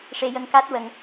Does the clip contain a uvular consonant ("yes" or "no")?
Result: no